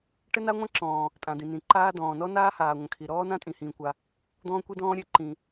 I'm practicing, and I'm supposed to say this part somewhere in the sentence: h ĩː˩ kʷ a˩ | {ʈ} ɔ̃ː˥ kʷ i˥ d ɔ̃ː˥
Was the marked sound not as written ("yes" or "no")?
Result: yes